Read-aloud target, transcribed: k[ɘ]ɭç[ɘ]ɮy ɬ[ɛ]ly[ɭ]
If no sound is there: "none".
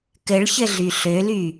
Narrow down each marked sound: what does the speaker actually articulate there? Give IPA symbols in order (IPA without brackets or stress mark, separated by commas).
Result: ɘ, ɘ, ø, none